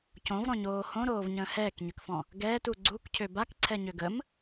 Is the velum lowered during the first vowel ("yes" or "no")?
yes